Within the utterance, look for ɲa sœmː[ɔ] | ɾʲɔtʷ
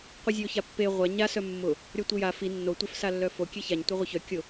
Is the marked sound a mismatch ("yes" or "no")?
yes